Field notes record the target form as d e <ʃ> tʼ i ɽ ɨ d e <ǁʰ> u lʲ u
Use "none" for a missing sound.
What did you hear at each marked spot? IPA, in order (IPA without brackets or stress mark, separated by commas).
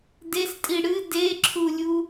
s, ǁʰ